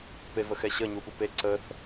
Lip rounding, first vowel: unrounded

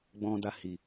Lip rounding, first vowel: rounded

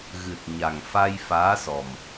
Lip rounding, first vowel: unrounded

